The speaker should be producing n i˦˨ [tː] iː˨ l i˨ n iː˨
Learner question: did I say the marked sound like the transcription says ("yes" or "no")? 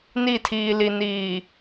no